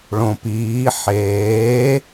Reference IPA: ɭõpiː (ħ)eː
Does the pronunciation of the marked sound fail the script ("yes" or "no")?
no